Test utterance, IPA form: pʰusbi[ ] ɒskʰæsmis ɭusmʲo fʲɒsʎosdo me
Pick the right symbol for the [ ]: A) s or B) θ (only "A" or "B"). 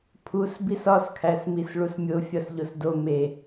A